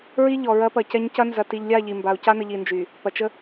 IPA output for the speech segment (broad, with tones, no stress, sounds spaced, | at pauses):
ɹ i˦ ʎ ɔ˨ ɹ ɐ˦ p ɐ˨ c ɛ˦ ɲ c ɐ˦ n z ɐ˨ t i˨ ʎ lʲ a˦˨ ʎ i˨ m b a˨ u̯ c a˦ n ə˨ ʎ i˨ n d͡ʒ y˨ | p ɐ˨ t͡ʃ ə˦